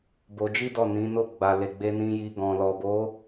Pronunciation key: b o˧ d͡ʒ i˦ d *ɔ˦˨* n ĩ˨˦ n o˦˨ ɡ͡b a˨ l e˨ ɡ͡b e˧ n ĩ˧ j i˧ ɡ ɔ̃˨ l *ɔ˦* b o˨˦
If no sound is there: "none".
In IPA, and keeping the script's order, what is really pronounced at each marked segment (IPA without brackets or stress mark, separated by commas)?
ɔ˦˨, ɔ˨